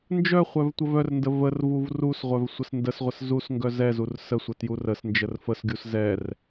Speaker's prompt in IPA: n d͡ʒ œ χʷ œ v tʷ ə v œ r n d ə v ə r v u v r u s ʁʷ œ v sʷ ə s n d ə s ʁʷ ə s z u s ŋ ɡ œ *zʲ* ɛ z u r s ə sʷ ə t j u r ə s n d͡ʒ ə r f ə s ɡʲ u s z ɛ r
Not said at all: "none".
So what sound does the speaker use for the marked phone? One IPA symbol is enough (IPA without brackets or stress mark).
z